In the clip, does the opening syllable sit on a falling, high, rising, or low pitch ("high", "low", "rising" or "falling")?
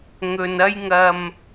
low